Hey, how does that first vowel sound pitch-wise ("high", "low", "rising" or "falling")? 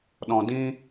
low